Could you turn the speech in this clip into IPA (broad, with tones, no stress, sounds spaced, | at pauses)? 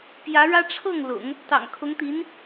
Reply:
p j ä˧˥ ɻ ä˥ ʈ͡ʂʰ ɤ˥˩ ŋ l ʊ̰˨˩˦ ŋ | t̪ ɑ̰˨˩ ŋ kʰ ʊ˧˥ ŋ t̪ i˧˥ n